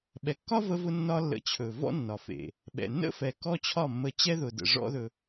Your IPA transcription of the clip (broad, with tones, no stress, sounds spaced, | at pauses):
ɓ ɛ˨ kː ɒ˦ v ə˧ v ʊ˧ nː ɒ˦ lː ə̰˧ t͡ɕʰ ɵ˨ v ɔ̰˦ nː ɒ˨ f ḛ˨ | ɓ ɛ̰˨ nː ə̰˦ f ɛ˨ k ɔ˦ t͡ɕʰ ɒ˦˨ mː ə˧ t͡ɕ ɛ˦ ð ʊ˨ d ə̰˨ ʐ ɔ̰˦ ð ɵ˧